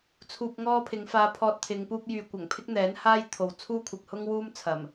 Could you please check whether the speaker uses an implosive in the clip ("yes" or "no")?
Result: no